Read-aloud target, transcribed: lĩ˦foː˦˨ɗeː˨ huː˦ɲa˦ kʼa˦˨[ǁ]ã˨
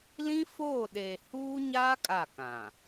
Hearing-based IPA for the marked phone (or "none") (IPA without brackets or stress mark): k